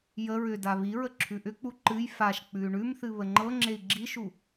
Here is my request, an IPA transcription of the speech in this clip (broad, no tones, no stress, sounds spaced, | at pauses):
j ə ɹ ʏ d a β i ɹ ə ǁʰ ʉ ʔ ʏ k͡p u ǃ ɨ j f a ʃ k͡p ʉ y̯ ɳ ʉ m θ ɨ β ə ŋ͡ǃ ɤ ŋ͡ǁ e i̯ ɡ͡ǁ i ʃ u